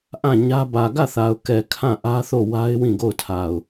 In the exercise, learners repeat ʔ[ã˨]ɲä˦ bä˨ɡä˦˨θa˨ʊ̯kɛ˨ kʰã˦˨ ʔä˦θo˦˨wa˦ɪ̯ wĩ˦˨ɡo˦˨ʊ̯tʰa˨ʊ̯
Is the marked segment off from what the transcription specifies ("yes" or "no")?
yes